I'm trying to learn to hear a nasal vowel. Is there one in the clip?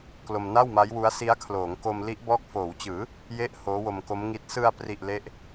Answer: no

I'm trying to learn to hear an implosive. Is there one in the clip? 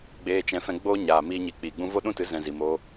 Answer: yes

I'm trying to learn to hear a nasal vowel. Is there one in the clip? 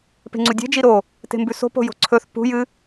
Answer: no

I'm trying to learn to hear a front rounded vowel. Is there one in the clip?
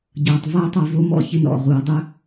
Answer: no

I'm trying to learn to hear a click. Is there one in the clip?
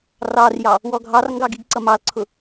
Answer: yes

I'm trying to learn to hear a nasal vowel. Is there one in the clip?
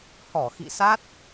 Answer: no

